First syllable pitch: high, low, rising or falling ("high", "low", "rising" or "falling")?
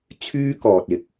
high